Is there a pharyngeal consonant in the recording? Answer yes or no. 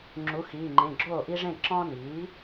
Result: no